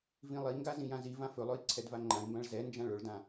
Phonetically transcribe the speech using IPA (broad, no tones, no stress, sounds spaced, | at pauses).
v ĩ lˠ i ŋ ɡ a z ĩ j ã z i v ã f ɵ lˠ ɵ i̯ ǀʰ ɛ d v a ŋ͡ǃ ã i̯ m b ã ɭ z ɛ n d͡ʒ ã ɭ ɵ ɭ d ã